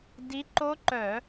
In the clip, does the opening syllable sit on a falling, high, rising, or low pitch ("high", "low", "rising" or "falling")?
rising